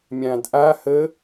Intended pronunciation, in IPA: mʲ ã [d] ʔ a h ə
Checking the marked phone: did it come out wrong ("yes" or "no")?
no